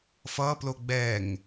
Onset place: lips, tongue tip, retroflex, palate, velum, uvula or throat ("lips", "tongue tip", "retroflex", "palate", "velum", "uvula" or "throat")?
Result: lips